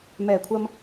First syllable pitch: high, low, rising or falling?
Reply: low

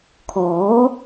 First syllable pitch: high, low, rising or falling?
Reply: rising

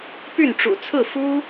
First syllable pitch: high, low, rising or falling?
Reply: falling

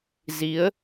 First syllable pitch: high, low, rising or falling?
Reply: rising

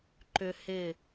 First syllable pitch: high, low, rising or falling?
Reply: high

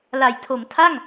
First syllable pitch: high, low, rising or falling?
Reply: low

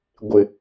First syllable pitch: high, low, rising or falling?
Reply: low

